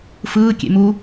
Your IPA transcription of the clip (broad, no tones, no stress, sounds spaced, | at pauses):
f ɯː kʲ ḛ m u